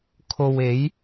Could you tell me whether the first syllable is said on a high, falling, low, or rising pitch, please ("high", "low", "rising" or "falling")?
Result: low